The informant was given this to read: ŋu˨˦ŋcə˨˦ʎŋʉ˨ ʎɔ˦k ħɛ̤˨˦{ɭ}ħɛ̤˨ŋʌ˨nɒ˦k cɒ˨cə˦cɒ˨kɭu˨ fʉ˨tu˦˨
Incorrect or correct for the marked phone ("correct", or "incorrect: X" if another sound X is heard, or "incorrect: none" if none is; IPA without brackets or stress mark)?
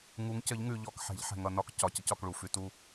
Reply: incorrect: ʎ